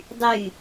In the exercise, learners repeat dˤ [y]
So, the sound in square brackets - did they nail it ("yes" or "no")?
yes